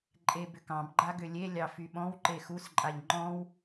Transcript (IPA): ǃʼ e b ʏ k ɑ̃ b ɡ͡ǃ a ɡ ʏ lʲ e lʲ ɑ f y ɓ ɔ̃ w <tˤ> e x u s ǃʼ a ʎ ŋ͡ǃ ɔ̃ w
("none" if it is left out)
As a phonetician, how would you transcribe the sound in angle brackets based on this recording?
ǃ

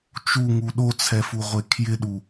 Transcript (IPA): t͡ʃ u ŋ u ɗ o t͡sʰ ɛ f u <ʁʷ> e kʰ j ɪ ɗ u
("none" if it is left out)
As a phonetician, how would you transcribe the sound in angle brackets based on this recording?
ʁʷ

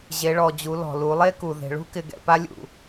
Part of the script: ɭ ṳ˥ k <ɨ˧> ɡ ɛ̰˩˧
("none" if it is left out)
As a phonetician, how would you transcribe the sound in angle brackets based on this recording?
ɪ˧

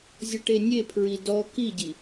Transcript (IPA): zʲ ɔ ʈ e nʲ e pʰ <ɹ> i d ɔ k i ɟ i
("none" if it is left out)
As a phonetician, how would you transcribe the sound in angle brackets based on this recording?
ɹ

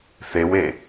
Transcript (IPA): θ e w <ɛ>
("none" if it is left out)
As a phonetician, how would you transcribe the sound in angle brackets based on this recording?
e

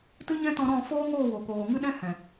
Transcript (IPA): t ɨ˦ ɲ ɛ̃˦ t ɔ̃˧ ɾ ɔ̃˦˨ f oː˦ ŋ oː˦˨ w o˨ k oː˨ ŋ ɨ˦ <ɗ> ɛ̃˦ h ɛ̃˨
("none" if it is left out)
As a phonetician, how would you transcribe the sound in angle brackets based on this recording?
ɗ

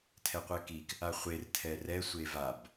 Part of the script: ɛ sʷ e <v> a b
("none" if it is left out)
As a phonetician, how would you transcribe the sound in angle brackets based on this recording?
v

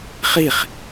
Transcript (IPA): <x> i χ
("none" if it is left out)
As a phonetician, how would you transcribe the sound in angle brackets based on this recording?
χ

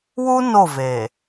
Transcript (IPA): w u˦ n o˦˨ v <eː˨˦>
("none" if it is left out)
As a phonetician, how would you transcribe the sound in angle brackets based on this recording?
eː˨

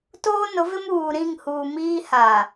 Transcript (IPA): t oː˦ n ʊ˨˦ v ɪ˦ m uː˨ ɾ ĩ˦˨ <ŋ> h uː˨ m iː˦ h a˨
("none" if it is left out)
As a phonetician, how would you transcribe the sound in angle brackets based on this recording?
ŋ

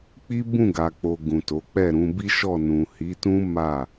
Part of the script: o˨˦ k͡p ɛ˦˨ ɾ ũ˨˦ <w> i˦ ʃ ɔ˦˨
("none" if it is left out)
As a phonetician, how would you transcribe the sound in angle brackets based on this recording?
b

